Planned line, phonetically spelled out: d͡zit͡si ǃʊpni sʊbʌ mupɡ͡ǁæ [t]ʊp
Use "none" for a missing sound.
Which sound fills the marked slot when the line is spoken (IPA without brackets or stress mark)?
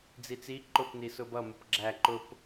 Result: ǃ